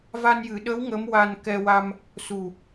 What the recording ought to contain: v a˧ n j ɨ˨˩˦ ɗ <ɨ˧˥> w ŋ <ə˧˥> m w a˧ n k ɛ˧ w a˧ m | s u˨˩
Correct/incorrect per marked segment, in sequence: incorrect, correct

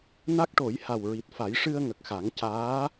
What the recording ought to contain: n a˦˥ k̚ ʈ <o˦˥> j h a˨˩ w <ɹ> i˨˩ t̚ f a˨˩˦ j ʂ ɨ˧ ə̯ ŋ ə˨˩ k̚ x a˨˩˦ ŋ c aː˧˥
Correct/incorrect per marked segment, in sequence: incorrect, correct

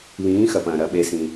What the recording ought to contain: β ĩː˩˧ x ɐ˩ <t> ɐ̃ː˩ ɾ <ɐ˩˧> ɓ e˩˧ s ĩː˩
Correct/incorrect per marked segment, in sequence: incorrect, correct

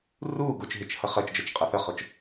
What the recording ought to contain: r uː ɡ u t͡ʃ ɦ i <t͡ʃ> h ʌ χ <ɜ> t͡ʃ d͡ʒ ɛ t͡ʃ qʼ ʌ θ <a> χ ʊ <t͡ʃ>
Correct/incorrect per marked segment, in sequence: correct, correct, incorrect, correct

